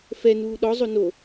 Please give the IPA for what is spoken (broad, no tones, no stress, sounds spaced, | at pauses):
f ɛ n uː ɗ ɔ zˤ o n o